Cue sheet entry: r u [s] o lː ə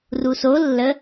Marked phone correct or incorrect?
correct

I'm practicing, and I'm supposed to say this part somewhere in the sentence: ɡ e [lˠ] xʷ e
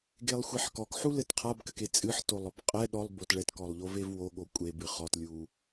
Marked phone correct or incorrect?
correct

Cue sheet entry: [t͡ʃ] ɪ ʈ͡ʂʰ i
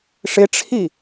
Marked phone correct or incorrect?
incorrect: ʂ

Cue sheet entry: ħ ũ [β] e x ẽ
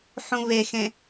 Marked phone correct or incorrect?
correct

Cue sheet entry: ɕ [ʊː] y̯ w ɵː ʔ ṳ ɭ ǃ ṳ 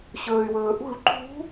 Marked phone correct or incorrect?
incorrect: ɵː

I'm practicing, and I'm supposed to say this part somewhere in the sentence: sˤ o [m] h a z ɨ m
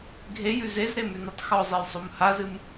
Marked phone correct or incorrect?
correct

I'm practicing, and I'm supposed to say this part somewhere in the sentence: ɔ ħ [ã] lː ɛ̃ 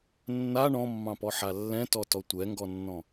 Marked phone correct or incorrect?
incorrect: a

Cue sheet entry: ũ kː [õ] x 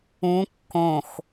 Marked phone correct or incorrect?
correct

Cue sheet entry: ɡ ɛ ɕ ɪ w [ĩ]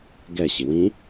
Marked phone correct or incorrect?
correct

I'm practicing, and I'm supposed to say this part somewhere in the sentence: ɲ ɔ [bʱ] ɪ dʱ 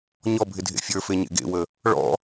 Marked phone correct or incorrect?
correct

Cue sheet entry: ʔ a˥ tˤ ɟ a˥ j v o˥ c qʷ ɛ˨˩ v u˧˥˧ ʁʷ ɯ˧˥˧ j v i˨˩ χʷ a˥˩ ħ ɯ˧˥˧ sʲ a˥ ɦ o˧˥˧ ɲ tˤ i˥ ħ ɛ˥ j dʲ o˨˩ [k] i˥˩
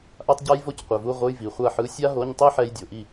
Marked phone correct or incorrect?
incorrect: ʔ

